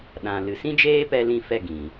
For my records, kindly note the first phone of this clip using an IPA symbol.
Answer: ɗ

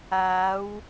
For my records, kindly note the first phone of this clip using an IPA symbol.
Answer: aː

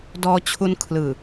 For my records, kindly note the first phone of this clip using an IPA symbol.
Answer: d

